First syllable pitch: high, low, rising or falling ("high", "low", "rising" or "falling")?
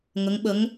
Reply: rising